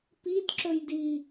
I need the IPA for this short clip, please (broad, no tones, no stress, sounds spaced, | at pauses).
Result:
p i d ǁ ɵ j d i